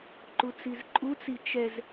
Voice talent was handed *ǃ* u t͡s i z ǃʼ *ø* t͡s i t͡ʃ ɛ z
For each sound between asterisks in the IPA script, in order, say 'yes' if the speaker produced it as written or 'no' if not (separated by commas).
yes, no